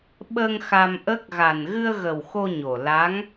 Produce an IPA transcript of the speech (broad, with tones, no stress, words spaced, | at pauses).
ɓə˧ŋ xa˧mʔə˦˥k̚ ɣa˨˩nɣɨ˧ə̯ɣə˨˩w xo˧ɲo˨˩ la˧˥ŋ